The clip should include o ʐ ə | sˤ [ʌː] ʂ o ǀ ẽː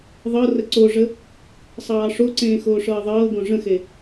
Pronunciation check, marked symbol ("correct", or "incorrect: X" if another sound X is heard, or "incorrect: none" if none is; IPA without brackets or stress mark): incorrect: ɑː